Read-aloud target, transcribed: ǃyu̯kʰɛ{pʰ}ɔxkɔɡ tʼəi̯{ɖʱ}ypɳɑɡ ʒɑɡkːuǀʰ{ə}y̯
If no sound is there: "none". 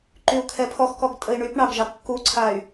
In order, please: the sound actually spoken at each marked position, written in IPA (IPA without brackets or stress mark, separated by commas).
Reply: pʰ, ɳ, a